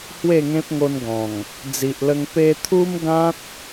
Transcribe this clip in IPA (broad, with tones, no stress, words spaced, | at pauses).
hwe˥˧ŋẽ˦p̚ŋo˧nɡɔ̃˨˩ŋ | d͡zi˨ʔlə˧ŋ pe˧t̪ʰu˦mɡã˦t̚